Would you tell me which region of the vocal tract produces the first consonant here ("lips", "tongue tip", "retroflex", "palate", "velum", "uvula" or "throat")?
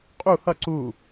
uvula